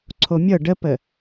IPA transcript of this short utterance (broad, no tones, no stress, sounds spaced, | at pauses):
ǀʰ o mʲ ɤ ɖ ə p ə